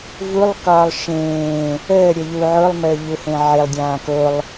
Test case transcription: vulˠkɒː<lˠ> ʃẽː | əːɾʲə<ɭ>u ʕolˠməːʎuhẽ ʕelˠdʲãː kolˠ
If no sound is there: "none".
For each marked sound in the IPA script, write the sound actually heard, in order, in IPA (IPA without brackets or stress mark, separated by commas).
lˠ, ʎ